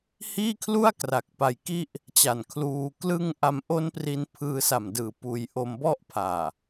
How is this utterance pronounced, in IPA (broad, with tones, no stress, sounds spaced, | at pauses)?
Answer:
h iː˥˩ kʰ l u˥˩ a̯ k r a˨˩ k̚ p a˧ j k i˥˩ ʔ | t͡ɕ a˨˩ n kʰ l uː˧ k l ɯ˥˩ ŋ ʔ a˧ m ʔ o˦˥ n p r i˧ n pʰ ɯː˧ s a˨˩ m d ɯː˨˩ p uː˧ j ʔ o˧ m b ɔ˦˥ ʔ pʰ aː˨˩